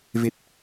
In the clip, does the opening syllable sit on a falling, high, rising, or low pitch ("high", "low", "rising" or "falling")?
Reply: low